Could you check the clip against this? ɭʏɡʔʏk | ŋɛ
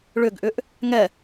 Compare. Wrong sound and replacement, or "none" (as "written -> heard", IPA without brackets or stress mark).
k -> ʔ